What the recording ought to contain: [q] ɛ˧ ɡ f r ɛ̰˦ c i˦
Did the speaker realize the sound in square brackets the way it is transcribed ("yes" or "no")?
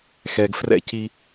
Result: no